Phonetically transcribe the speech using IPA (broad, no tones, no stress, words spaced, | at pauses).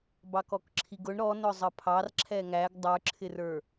bɑkɔkǁʰiɡʊɳ ɾɔnʊ zˤəpʰɑr ǁʰɛŋæɡ dˤə˞ǁʰɪrə˞